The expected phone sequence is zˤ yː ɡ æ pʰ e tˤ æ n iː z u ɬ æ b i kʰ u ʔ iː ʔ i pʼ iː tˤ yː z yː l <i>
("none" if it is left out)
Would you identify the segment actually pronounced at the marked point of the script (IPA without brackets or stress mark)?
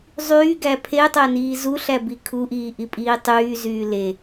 e